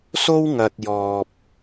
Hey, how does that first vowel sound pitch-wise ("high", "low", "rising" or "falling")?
high